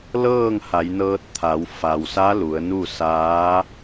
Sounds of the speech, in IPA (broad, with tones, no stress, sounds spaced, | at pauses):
l ɤː˥˨ ŋ h a˩˧ j n ɤː˧ t̚ t̪ʰ a˩˧ w f a˩ w s a˧˥ l u˩˧ ə̯ n u˥˨ s aː˧˥